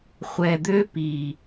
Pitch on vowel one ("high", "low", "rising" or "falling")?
low